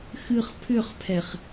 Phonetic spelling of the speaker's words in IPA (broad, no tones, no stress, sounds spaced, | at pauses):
x ɨ χ pʰ ʏ χ pʰ ɛ χ